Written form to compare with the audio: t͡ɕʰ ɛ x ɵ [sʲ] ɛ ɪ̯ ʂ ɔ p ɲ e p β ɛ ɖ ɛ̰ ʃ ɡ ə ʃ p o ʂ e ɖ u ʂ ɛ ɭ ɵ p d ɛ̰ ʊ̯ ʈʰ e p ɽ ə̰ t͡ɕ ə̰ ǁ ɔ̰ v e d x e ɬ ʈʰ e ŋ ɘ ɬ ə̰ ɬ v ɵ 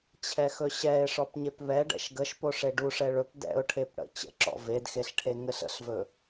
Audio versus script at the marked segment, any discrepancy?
yes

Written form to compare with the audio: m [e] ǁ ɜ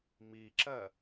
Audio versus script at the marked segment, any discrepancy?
yes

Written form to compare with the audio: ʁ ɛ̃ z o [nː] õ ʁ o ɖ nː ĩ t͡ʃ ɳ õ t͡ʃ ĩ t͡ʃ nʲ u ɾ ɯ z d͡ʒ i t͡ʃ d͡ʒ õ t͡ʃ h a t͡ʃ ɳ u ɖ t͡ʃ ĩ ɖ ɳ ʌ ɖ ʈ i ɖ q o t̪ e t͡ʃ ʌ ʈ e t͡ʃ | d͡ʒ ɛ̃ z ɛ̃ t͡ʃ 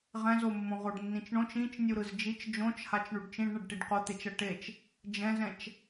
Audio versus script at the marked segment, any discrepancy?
yes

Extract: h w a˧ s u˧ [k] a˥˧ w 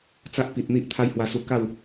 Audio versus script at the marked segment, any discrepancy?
no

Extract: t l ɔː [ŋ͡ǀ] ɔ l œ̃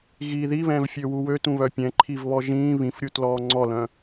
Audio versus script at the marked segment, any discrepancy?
no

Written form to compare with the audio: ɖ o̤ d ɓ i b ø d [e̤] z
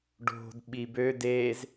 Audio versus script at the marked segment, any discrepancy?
yes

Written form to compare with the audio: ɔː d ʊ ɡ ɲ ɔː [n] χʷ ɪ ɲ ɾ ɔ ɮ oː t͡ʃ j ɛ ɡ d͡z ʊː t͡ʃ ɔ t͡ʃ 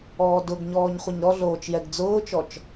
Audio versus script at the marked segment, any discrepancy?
yes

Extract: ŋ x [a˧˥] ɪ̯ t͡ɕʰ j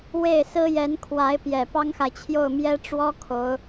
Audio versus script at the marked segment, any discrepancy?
yes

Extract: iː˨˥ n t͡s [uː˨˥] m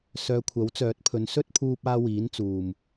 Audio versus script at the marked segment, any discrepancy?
yes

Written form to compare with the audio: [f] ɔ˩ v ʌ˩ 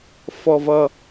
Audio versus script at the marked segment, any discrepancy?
no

